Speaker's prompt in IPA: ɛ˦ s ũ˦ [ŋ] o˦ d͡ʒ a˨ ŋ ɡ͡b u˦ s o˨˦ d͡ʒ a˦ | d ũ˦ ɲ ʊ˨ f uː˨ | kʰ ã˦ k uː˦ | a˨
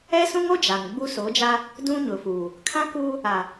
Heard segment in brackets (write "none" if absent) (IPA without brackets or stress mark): ŋ